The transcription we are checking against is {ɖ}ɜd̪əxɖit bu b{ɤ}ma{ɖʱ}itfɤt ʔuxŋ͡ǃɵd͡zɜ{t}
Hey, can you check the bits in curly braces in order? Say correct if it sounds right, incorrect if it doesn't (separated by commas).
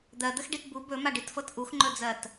incorrect, incorrect, incorrect, correct